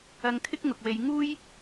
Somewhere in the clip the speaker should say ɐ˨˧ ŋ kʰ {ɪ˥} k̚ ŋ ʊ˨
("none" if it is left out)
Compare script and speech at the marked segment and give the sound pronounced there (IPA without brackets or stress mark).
ɪ˥